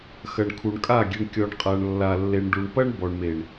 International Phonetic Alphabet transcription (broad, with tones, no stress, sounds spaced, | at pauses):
x ɐ˨ ɳ kʰ u˨ ɳ kʼ a˦˨ ɡʲ e˨ ɳ kʲ ɔ˨ ɳ qʼ a˨ ɳ lː a˨ lː e˨ ɳ ɖ u˨ ɳ p ɐ˦ ɳ b ɔ˨ ɳ m e˨ ɳ